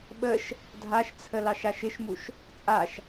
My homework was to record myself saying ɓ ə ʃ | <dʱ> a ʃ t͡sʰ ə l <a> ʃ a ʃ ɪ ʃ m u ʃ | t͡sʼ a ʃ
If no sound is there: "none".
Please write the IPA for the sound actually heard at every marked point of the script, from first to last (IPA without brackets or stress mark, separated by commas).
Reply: dʱ, ɑ